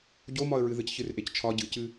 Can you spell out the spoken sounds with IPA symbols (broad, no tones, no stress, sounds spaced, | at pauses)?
ɟ o m ɒ ə̯ ɹ ɨ ð ɨ c ç ɨ r ʔ e c t͡ʃʰ ɒ ɟ ɨ c ɨ